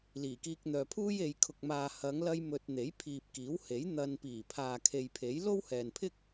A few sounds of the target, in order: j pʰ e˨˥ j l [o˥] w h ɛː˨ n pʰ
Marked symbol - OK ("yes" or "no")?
yes